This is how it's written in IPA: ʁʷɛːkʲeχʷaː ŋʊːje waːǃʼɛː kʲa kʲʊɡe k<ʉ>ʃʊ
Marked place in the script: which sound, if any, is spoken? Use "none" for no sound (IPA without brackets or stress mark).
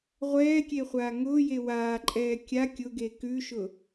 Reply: ʉ